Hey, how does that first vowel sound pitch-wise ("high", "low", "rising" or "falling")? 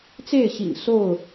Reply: falling